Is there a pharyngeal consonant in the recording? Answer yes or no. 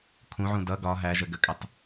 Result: yes